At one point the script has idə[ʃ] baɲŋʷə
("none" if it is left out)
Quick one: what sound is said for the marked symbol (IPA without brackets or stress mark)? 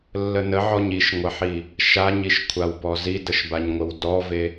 ʃ